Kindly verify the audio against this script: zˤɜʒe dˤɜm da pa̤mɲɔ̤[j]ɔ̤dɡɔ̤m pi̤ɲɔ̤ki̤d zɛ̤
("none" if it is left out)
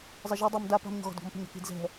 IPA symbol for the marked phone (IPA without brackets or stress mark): ɣ